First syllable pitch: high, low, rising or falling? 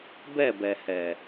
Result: falling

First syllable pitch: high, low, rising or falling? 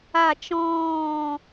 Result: falling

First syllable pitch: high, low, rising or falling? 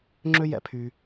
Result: high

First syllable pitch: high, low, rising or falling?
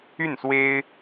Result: falling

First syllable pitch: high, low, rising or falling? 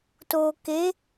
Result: low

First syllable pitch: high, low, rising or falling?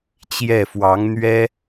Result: falling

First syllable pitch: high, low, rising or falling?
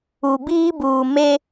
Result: low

